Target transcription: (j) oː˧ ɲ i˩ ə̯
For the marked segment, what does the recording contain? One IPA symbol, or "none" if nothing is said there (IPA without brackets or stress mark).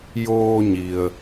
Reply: j